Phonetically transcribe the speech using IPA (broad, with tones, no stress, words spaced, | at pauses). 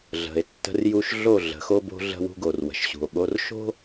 ɮə̤˨e̯ tːə̤˦rju˦ʃ ɮo˦˨ ɮə̤˨˦xo˦bo̤˦ ɮə̤˦wṳ˦ɡo˨r wə̤˨ʃɕṳ˨o̯ɠo˦r ʃo̤˦